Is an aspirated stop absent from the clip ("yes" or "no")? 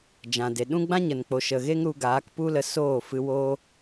yes